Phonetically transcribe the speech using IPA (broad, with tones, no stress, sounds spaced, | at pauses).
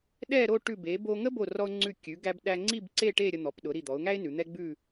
ɗ ɛ˥˧ ɾ o˥˧ ʈ ʉ˧˩ b e˩˧ b o˧ ŋ ə˥ b o˧˩ r ɔ˧ ʊ̯ ŋ͡ǀ ʉ˧˩ kʲ ʉ˩˧ ɡ æ˧ b ɗ æ˧ ŋ͡ǀ i˥˧ b ǀ e˥˧ ʈ e˥˧ ɾʲ ə˧ n̪ ɔ˩˧ p ɗ ʊ˩˧ ɾ i˧˩ d̪ ɔ˩˧ ʊ̯ ŋ æ˥ ɪ̯ n ʉ˩˧ n̪ ɛ˥ ɡ͡b ʉ˥˧